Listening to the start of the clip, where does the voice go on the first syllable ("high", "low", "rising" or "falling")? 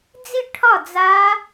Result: falling